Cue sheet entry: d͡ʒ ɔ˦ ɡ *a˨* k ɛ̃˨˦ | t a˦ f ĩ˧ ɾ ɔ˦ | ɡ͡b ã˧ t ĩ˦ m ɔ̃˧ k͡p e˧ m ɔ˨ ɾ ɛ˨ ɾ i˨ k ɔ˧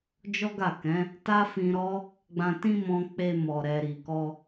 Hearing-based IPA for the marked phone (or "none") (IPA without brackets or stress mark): a˦˨